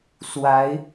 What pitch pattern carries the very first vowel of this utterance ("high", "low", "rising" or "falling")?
rising